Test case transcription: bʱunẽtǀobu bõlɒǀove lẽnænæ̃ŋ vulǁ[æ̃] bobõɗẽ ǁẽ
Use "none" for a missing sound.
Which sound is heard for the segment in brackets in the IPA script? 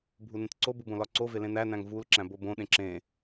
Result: æ̃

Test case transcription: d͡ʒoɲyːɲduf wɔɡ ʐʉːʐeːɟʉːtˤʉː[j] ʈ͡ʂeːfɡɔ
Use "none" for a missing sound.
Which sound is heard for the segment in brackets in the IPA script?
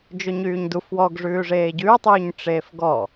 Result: ɲ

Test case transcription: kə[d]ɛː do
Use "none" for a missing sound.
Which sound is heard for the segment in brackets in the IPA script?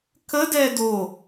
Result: d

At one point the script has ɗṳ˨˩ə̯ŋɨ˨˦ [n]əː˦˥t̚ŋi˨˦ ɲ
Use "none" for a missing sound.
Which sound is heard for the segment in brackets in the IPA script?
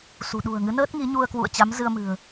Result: n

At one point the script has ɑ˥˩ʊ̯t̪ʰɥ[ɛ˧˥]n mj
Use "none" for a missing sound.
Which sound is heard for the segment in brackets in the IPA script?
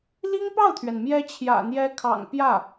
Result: ɛ˩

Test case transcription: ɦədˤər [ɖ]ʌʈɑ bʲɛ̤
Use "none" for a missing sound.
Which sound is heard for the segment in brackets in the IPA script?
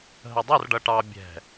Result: ɖ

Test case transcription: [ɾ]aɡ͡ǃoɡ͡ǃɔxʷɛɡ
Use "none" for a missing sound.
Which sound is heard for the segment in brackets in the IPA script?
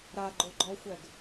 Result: ɾ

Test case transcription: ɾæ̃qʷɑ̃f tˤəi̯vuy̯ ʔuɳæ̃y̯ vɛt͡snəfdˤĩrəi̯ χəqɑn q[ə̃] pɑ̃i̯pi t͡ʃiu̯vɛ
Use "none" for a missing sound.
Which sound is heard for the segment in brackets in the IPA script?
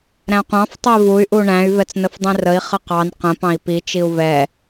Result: ə̃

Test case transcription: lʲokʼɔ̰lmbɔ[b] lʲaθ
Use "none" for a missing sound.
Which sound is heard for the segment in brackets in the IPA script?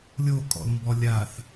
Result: none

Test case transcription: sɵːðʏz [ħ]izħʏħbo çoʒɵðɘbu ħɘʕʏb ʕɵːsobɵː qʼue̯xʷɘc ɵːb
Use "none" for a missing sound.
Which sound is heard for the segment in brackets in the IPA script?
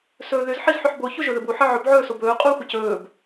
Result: ħ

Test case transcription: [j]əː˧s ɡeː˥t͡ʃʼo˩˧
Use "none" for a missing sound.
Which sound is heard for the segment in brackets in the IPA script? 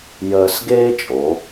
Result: j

